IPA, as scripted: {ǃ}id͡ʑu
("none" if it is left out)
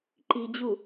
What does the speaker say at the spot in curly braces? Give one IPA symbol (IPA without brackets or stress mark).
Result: ǃ